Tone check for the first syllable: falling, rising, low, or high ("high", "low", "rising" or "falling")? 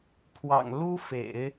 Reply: low